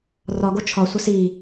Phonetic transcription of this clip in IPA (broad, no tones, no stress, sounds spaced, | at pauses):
r ɒ ɡ o t͡ʃʰ ɒ sʷ ɐ s i